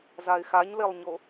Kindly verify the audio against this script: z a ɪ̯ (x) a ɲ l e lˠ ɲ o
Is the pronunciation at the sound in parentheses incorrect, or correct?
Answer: correct